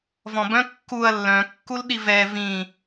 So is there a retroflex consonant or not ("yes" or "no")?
no